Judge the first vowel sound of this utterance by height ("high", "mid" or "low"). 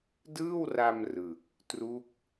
high